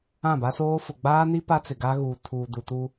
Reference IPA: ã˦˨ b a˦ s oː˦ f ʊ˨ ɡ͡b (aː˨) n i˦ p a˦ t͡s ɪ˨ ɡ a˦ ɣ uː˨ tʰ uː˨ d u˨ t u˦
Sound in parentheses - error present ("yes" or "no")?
yes